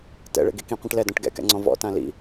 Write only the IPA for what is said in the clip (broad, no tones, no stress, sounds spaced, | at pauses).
t ɛ̰ ɭ ḛ ɡ i k ĩ qʷ ĩ ʈ l ɛ d ɔ̃ ʈ ɡ ɛ̰ k ɛ̰ ŋ͡ǀ ɔ̃ v ɔ̰ t ã l ḭ